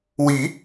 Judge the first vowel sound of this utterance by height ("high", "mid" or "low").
high